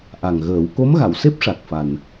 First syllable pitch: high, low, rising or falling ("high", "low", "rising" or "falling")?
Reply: low